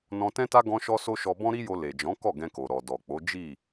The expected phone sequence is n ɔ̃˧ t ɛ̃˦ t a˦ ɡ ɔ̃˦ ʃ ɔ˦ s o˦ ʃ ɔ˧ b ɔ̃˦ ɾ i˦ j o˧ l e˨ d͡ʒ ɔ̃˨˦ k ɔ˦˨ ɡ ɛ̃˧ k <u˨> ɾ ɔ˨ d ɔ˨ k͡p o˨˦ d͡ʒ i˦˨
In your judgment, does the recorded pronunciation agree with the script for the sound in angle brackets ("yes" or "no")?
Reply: no